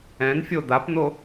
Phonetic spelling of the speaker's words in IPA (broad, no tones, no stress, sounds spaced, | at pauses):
ɛ̃ n fʲ o d̪ a p n̪ o